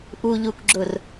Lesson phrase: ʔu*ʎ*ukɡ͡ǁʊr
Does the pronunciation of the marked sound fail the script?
no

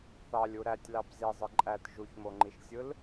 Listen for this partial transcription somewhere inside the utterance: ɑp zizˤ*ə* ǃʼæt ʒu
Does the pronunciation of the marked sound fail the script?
yes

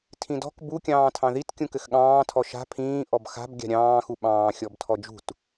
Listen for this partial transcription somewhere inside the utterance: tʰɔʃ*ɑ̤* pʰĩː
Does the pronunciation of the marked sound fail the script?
yes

